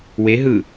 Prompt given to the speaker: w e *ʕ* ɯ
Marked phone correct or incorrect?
incorrect